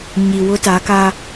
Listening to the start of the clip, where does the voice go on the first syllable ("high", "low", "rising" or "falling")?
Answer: low